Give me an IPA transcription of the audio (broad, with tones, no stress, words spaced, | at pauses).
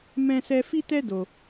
mɛ̃˦sɛ˦ fi˦tɛ˦do˧